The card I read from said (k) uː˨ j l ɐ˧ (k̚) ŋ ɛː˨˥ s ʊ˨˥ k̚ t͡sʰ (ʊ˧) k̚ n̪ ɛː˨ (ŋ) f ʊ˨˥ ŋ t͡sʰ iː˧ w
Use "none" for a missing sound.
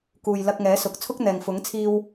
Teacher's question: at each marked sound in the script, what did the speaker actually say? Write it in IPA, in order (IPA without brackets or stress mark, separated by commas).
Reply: k, k̚, ʊ˥, ŋ